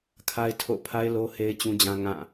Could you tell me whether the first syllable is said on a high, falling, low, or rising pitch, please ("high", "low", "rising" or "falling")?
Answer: high